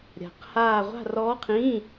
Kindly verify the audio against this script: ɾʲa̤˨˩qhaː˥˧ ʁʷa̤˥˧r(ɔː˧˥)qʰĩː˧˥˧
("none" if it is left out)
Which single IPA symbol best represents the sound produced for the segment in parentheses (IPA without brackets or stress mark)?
ɔː˧˥